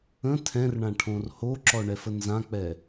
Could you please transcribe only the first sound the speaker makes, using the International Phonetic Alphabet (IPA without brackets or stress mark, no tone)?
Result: ə̃